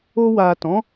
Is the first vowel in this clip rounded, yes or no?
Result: yes